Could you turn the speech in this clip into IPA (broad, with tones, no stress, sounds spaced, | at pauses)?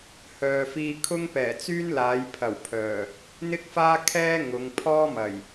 h œː˨ f iː˧ kʰ ʊ˥ ŋ p ɛː˨˩ t͡s yː˥ n l aː˨˧ j pʰ ɐ˨˩ w pʰ œː˨˩ | n̪ ɪ˥ k̚ f aː˥ kʰ ɛː˥ ŋ ʊ˨˧ ŋ pʰ ɔː˥ m ɐ˨˩ j